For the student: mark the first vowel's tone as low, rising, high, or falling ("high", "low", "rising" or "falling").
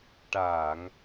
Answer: low